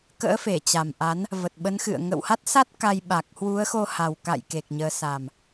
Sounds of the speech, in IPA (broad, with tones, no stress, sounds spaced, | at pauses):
k ə̰ː˧˥ f e˧˩ t͡ɕ a˨˩ m ʔ a˨˦ n | v ə˨˩ t̚ ɓ ə˨˦ n x ɨ̰˧˨ ə̯ ŋ ə̰˧˨ w h a˦˥ t̚ s a˦˥ t̚ k a˧ j ɓ a˨˩ k̚ h w u˨˦ ə̯ x o˧ h a˨˩ w k a̰˧˨ j k e˨˩ k̚ ɲ əː˨˦ s a˨˩ m